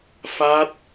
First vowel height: low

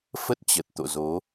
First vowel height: mid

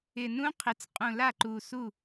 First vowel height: high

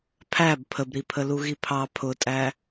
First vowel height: low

